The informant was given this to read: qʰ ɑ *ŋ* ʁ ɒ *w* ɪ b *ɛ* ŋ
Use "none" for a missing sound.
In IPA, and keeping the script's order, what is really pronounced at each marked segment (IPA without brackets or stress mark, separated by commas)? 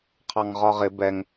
ŋ, ʁ, ɛ